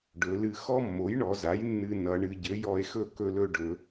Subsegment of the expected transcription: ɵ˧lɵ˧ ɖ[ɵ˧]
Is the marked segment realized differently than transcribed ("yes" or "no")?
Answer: yes